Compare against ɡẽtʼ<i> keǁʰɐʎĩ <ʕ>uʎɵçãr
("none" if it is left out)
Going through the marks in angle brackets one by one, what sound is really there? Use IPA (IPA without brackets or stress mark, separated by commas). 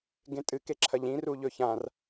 ɨ, r